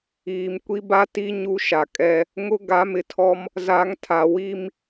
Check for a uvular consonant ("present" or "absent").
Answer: absent